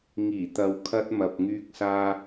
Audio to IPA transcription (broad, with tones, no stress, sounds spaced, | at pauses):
ŋ iː˨˩ t̪ ɐ˨ w kʰ ɐ˧ t̚ m ɐ˨ p̚ ŋ yː˧ k̚ s aː˧